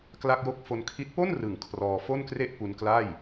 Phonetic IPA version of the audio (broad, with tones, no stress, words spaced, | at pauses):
kla˥˩k̚jo˥˩k̚ fo˧nkʰi˦˥t̚ po˥˩nrɯ˨˩ŋ kʰrɔː˧ fo˥˩nkre˥˩ʔ pu˧nkla˥˩j